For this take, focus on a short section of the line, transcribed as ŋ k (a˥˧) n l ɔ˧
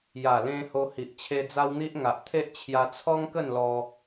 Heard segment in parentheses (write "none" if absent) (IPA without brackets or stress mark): ə˥˧